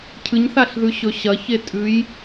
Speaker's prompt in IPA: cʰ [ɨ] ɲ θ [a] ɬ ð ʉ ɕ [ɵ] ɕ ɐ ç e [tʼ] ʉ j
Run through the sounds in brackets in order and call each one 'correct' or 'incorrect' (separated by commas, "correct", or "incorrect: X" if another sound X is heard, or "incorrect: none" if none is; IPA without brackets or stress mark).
correct, correct, correct, correct